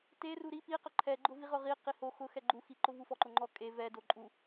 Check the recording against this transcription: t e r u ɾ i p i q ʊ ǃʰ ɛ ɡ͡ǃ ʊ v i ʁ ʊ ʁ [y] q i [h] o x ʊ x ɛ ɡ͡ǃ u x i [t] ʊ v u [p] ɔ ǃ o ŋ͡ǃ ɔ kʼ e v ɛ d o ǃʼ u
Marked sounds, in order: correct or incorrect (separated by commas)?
incorrect, correct, incorrect, incorrect